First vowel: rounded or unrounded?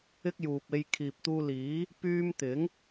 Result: unrounded